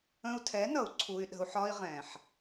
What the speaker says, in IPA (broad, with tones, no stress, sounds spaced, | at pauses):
ə̃˧ u̯ tʰ ɛ˨˦ n ʌ˨ u̯ ǀʰ u˧ y̯ ɗ ə̤˧ u̯ ħ ɒ˦ i̯ ʁ ɛ̃˨ ħ